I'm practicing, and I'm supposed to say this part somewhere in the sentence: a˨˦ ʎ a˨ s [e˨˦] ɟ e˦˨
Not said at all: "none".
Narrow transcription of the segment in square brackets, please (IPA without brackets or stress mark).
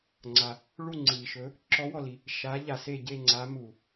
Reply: e˦˨